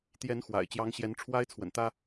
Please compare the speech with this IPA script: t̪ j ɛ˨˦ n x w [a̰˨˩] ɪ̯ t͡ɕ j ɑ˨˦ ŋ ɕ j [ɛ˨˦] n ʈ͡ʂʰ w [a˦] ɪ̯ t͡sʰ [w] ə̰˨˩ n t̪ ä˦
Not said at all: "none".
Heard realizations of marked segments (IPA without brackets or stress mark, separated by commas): a̰˨˩, ɛ˨˦, a˦, w